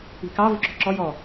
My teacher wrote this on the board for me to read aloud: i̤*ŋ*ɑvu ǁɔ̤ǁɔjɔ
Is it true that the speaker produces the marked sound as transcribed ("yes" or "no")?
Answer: no